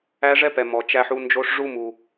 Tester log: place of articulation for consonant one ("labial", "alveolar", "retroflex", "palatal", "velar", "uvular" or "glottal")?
retroflex